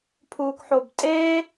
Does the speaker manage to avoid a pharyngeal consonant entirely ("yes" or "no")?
no